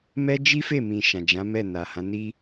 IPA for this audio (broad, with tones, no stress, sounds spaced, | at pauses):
m ɛ˦ d͡ʒ i˦ f e˦˨ m ĩ˨ ʃ ã˨ d͡ʒ ã˨˦ m ɛ˦˨ n a˨ h ã˨˦ n i˦